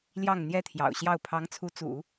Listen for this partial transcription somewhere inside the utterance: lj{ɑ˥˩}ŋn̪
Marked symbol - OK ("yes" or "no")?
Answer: yes